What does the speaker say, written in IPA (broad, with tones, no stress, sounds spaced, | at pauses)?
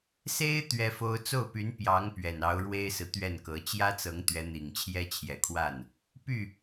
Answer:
s e˥ ɪ̯ t̪ ɥ ɛ˥ f o˥ ʊ̯ t͡s o˥˩ ʊ̯ p y˧˥ n p j ɑ˧˥ ŋ p ɥ ɛ˨˩ n ɑ˧˥ ʊ̯ ɻ w e˥ ɪ̯ s ɹ̩˨ t̪ ɥ ɛ˥˩ n k ɤ˧˥ t͡ɕ j ä˥ t͡s ɤ˧˥ ŋ t̪ ɥ ɛ˧˥ n̪ i˨˩ ŋ t͡ɕʰ j ɛ˥ t͡ɕʰ j ɛ˨˩ kʰ w a˥˩ n | p y˥˩